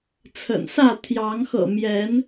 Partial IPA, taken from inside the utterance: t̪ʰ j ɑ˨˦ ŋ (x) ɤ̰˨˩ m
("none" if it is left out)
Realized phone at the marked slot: x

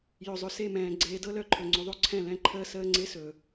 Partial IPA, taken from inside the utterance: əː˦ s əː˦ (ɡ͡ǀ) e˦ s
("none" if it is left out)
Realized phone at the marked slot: ŋ͡ǀ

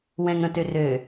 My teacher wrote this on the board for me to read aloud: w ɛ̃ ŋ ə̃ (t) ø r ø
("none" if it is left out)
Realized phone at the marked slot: t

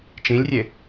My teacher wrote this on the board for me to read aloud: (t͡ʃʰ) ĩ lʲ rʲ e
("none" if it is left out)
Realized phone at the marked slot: t͡ʃ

